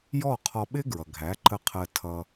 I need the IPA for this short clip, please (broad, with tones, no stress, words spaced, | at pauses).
jɔ˥˩ qʰɔ˧ɓɪ˥ɡɹʌ˩ ɡʱæ˩˥ǃə˧qʰɜ˧ tʰʌ˧